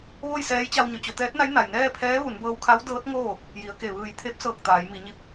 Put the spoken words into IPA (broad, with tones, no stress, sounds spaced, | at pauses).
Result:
ʋ o˥˨ j s ɛː˧˥ j t͡ɕ a˧ w ɲ o˩˧ t͡ɕ o˩˧ t̪ ɛː˧˥ t̚ n a˧˥ j n a˩ j n ɛː˥˨ pʰ ɛː˧˥ ʋ u˩˧ n b ɤː˧ w kʰ a˧˥ w d ɤː˧˥ t̚ ŋ oː˥˨ | j i˩˧ ə̯ k e˧˩ ʋ ɯː˧˩ j t̪ʰ e˧˥ p̚ s ɤː˧˩ k̚ t̪ aː˩˧ j m i˩˧ ɲ i˧ p̚